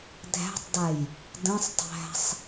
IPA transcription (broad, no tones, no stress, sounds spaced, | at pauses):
dʱ æ̤ tˤ d a j | d ə̃ sˤ tˤ æ̤ sˤ